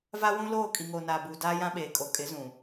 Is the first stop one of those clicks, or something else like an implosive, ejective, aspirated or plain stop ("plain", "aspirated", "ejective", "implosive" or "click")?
ejective